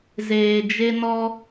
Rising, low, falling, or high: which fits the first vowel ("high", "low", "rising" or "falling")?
low